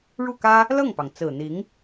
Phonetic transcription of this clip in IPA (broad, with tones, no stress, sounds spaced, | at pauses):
ɻ u˥˩ k ä˥ | l ɤ˥˩ ŋ p ɑ˩ ŋ t͡s ɹ̩˨˩ n̪ i˧˥ ŋ